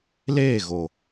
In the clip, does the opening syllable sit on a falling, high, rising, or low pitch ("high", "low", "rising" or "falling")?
falling